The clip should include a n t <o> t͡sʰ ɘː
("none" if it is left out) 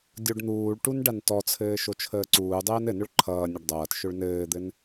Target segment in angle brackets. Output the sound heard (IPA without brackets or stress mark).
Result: ɔ